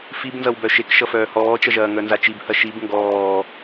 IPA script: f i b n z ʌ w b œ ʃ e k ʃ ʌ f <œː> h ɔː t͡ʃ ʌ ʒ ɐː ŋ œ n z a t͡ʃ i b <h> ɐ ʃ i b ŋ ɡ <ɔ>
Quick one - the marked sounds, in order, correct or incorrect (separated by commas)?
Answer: correct, correct, incorrect